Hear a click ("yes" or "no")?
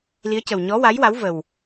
no